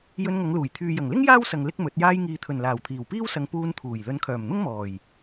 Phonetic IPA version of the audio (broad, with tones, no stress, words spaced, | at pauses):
jɵ˧nŋɐ˨˧ŋluː˨˩j t̪ʰyː˨jɐ˨˩ŋlɪ˥ŋ jaː˥wsɐ˨ŋ lɪ˥k̚mɵ˨˥t̚ jaː˧jŋiː˨t̪ʰɵ˨˩n laː˨˩wt̪ʰiː˨˩wpiː˥wsɐ˨˧ŋ puː˧nt̪ʰuː˨˩j lɵ˨˧nkʰœː˨˩mn̪ʊ˥ŋmɔː˨˩j